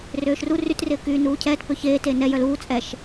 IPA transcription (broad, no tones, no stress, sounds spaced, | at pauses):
r øː ʃ r u r y t r ɪː k yː n uː cʰ ɛː t p ø ç eː t e n ɛ j œ l uː t͡sʼ ɛ ʃ